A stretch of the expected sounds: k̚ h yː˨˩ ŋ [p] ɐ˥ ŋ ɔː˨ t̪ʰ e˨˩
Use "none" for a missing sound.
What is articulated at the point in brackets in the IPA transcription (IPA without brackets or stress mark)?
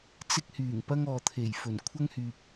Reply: p